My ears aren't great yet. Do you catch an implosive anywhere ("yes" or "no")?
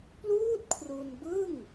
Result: no